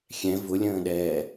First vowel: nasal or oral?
nasal